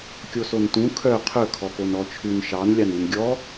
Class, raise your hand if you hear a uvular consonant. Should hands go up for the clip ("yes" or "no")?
yes